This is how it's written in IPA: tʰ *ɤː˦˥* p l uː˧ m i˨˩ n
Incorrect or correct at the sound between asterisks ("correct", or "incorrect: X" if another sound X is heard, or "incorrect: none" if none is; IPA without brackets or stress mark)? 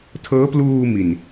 correct